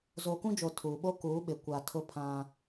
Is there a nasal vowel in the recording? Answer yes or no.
yes